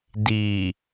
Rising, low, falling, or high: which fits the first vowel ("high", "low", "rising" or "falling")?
low